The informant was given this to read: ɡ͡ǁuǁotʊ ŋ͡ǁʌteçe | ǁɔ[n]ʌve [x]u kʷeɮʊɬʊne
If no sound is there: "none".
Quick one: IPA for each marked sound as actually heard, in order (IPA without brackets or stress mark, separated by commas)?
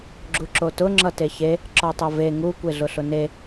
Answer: tˤ, ŋ